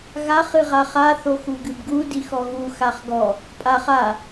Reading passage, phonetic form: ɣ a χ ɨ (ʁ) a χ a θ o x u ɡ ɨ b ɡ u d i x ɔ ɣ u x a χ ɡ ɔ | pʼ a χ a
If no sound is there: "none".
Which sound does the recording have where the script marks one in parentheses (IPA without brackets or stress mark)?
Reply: ʁ